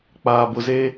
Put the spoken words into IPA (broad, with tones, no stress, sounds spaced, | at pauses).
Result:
k͡p aː˨ b ʊ˨ z e˦